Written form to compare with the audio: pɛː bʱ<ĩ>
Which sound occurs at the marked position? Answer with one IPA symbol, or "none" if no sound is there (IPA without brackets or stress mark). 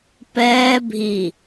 i